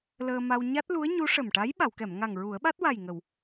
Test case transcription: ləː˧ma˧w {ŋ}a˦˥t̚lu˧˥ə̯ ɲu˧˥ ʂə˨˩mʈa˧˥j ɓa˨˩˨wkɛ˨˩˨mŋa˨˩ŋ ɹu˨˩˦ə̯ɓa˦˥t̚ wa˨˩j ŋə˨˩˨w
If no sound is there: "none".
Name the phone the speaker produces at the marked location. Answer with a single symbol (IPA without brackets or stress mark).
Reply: ɲ